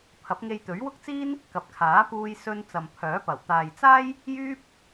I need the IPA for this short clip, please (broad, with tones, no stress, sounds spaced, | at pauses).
pʰ ɐ˨˥ p̚ ŋ e˧ j t̪ ɵ˨˥ ɥ w ʊ˥ k̚ t͡s iː˥ n | k ɐ˨ p̚ kʰ aː˨˥ p uː˧ j s ɵ˧ n t͡s ɐ˨ m pʰ œː˨˥ p ɐ˨˩ w t̪ aː˨ j t͡s aː˥ j | j yː˥ p̚